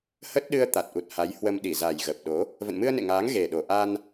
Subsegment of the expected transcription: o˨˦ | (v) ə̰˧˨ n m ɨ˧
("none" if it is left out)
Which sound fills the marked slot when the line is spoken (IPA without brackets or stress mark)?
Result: v